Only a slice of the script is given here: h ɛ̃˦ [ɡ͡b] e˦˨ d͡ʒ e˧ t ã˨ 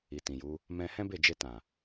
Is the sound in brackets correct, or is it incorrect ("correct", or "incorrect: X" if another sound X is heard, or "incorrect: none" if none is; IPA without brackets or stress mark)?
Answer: incorrect: b